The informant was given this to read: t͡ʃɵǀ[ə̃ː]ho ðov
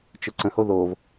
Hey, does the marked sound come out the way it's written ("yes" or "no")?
no